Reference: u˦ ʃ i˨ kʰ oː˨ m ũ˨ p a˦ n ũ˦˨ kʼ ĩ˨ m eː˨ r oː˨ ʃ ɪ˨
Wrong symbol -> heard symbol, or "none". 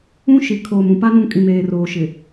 u˦ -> ũ˦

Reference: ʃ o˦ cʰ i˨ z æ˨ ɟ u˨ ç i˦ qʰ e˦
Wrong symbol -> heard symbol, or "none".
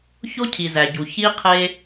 ʃ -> ç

